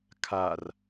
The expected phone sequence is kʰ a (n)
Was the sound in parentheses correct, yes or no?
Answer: no